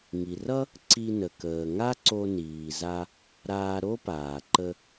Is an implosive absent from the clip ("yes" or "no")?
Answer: yes